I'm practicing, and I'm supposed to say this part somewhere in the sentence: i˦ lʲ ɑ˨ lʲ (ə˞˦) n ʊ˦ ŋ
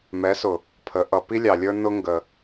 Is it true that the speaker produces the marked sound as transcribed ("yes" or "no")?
yes